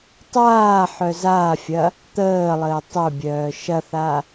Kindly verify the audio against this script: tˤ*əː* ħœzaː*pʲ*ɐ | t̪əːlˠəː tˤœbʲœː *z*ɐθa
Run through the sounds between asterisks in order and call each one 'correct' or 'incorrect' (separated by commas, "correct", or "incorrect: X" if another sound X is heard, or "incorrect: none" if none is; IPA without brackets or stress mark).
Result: incorrect: aː, incorrect: fʲ, incorrect: ʃ